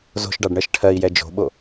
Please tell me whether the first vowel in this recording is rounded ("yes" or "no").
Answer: yes